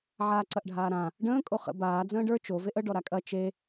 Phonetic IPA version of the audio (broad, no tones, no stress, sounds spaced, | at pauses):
ʕ aː ǀ ɐ ʔ ɖʱ aː ɾ ã | ɖ ə̃ː kʼ o χ ə̰ b aː d͡z ə̃ː ɖ ə˞ t͡ʃ o v e ʔ ə ɖ ɔ ɾ a kʼ ɐ t͡ʃ e